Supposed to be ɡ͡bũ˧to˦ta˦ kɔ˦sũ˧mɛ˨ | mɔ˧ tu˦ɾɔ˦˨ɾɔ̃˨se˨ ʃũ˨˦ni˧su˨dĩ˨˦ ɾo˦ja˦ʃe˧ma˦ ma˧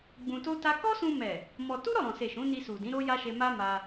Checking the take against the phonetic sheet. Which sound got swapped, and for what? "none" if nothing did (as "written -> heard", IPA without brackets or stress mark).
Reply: none